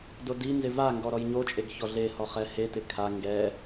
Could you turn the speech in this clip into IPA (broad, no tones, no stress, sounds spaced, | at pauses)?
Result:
d o d i n z ɪ v a ŋ ɡ ɔ ɾ ɔ j ɲ o t͡ʃʼ e ɡ ç ɔ ɮ e h ɔ χ ɛ h e t ɪ kʰ a ŋ ɡ ɛ